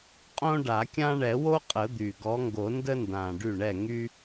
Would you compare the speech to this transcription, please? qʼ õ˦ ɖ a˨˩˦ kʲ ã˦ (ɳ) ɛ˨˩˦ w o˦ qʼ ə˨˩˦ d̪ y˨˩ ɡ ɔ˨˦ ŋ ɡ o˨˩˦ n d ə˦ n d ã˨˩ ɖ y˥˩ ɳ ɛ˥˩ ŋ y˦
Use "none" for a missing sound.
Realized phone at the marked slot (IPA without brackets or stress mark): ɳ